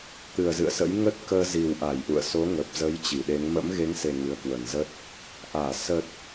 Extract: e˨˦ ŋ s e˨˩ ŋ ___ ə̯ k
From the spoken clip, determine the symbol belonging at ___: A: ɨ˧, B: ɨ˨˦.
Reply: B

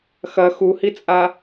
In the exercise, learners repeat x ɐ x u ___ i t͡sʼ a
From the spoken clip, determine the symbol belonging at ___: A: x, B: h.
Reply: B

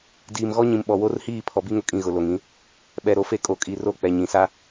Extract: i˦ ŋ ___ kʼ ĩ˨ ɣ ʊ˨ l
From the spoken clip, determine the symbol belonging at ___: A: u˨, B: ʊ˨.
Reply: B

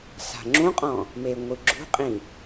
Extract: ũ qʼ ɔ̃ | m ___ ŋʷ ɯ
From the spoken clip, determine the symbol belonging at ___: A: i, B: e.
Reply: B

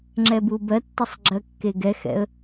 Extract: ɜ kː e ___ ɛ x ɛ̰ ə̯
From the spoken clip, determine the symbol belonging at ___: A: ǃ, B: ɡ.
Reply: B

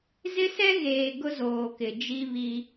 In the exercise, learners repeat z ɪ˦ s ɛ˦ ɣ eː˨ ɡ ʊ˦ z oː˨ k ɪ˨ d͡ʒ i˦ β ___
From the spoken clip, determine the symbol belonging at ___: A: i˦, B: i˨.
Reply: A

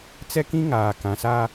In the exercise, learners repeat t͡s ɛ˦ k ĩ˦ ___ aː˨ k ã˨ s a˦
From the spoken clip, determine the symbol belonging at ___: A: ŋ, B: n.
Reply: A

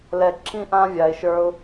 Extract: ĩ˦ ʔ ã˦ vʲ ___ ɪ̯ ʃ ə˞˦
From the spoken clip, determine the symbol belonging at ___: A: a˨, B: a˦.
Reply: A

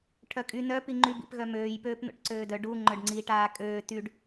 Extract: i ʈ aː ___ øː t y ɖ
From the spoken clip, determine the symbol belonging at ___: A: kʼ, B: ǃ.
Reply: A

